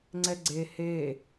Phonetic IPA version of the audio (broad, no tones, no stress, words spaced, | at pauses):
ŋ͡ǀɛɡ͡ǀe he